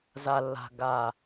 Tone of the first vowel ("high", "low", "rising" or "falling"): low